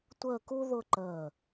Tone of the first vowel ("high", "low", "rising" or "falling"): falling